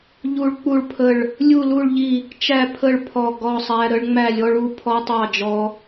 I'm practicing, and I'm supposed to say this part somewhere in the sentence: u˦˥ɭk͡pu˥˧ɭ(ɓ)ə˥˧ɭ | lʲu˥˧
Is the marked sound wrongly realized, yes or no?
yes